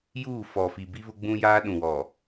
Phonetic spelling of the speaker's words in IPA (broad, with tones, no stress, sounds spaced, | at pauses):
j uː˦˨ f ɔ˨ f i˨ b i˦ β ʊ˦ ɡ͡b ũ˦ j aː˦ ɗ ũ˨ w ɔ˨